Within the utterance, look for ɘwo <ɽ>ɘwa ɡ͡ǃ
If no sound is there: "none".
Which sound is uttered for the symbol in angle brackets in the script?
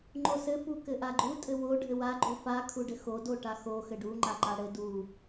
ɖʱ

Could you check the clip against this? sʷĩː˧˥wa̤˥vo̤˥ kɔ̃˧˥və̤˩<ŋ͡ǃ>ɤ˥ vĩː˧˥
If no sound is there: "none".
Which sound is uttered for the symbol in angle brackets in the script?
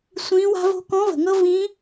ŋ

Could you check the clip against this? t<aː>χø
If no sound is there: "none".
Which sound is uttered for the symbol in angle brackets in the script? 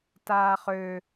aː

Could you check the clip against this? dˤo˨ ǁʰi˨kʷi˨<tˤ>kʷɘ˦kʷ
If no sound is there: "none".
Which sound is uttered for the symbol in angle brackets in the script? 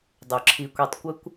tˤ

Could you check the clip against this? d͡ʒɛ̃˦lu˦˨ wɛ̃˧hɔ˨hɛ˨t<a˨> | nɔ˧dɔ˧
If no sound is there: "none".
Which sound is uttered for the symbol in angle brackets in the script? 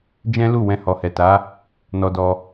a˨˦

